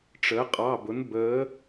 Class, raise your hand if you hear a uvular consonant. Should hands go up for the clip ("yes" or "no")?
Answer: yes